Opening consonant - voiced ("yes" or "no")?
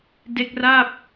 yes